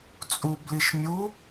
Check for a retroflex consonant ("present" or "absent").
absent